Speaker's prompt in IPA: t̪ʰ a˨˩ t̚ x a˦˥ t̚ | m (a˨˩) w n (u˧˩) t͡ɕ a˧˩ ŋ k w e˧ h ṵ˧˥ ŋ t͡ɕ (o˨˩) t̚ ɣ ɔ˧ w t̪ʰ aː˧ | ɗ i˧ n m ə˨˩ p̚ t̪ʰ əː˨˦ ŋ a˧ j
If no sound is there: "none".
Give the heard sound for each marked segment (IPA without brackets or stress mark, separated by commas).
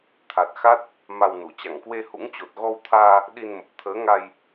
a˧, u˧˩, o˨˩